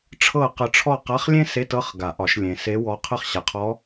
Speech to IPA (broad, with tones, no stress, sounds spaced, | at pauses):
ʈ͡ʂʰ ɤ˥˨ q ə˧˥ ʈ͡ʂʰ ɔ˥˨ q a˧˥˧ χ lʲ ẽ˥ s e˧˥˧ t ɤ˧˥˧ χ ɡ a˨˩˦ ʔ ɒ˨˩˦ ʃ lʲ ẽ˨ s e˧˥ w ɔ˧˥ qʰ ə˥˨ χ ɕ a˨ qʰ ɔ˧˥